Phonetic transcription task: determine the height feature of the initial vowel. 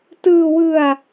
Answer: high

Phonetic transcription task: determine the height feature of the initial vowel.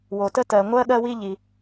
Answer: mid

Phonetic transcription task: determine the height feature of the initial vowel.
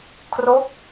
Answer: mid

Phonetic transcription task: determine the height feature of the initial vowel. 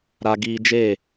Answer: low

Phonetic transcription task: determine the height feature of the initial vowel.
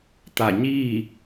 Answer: low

